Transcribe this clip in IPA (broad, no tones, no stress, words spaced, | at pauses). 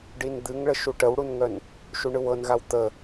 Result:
ɖind̪ɨŋɭə ʃuʈəwɽunŋœn | ʃuɳɯwɤnɣaw t̪ə